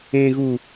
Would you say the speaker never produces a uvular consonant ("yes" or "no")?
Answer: yes